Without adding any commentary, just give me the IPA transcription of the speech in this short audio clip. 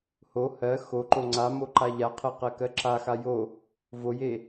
h o h ɜ x o ǃ o ŋ͡ǀ a m o ǃ a ʎ a qʰ ɜ q ɜ k ɜ ǁ a x a j o | v o j e

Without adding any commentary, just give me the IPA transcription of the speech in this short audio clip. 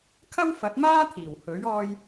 kʰ ɐ˥ w f ɐ˨˥ t̚ m aː˥ t̪ʰ iː˨˩ w h ɵ˨˥ ɥ ɔː˧ j

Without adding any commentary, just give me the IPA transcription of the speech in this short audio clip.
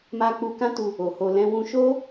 m a˧ k͡p u˧ k ã˦ t u˧ | o˨ h o˧ l ɛ̃˦ w ũ˧ ʃ o˦

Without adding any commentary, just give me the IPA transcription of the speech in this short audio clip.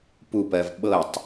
p u p ɜ v ɓ ɤ tˤ

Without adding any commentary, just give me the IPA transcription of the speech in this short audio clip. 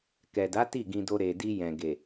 k ɛ˨ d a˨˦ t i˦˨ ɡ ĩ˧ d o˧ ɾ e˨ d i˧ j ɛ̃˨ ɡ e˨

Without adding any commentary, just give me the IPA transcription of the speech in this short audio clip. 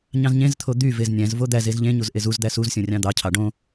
ɲ ɑ̃ z ɲ ẽ z t̪ʰ o d̪ y v e z nʲ æ̃ z v o d̪ æ z e z ʎ ẽ ɲ u z ʔ e z u z d̪ æ s u z sʲ õ rʲ ɑ̃ d̪ ɑ cʰ ɑ ɖ õ

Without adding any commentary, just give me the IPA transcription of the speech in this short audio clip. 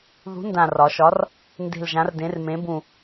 ð ṳ˨˥ n d ã˨˩ r ɒ˩˧ ʃ ɒ˨˥ r | n d e̤˨˩ l ʒ ã˩˧ r d ẽ˩˧ r m ẽ˩˧ b ũ˨˩

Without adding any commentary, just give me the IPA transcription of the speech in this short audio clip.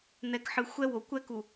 n̪ ɛ˨ k ħ ɨ˨ xʷ ɛ˦ w o˨ kʷ ɛ˦ k u˨

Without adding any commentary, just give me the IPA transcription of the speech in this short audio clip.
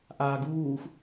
ʔ aː ɡ uː x

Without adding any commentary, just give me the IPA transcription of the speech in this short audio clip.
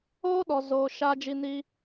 oː˦ ɗ ɔ˨ z oː˨ ʃ aː˦ d͡ʒ i˦ n i˦

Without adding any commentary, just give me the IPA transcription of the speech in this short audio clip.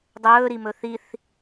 dˤ ɵː ɾ i m ɵ θ i θ

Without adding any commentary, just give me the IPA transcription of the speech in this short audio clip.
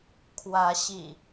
kʰ w ä˨˦ ɕ ḭ˨˩

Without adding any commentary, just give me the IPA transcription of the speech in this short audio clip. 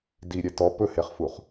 d i ɾʲ ɛ t ɔ p ɵ h e χ f u χ

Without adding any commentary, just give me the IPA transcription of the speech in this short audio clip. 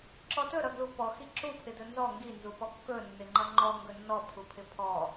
ǁ ɔ t ɵ ɾ ʌ ɡ l u p ɔ x i ǁ u pʰ ɪ d ɵ n z ɔ ŋ ɡ i n z u p ɔ kː ɵ nː ɪ ŋ͡ǃ ʌ ŋ͡ǃ ɔ ŋ ɡ ɵ nː ɔ pʰ u pʰ ɪ pʰ ɔ

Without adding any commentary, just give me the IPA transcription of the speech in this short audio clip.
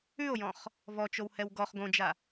ʉ o̯ j ɔ̃ χ | v ɔ t͡ʃ o w h ɛ w ɡ ɔ χ ɡ õ d͡ʒ a

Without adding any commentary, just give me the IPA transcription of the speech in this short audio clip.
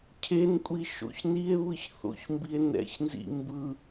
cʰ e n kʷʼ i ʃ o̰ ç n i e̯ β ɯ ç θ o̰ ç m b i e̯ n ɛ̰ ç n z ḭ m b ɯ

